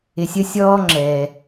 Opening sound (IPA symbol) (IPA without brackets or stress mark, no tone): ɪ